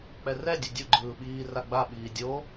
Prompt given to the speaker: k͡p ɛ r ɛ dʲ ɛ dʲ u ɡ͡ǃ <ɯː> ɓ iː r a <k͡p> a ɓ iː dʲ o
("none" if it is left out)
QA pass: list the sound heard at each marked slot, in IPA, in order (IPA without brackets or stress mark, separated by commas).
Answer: ɯː, ɡ͡b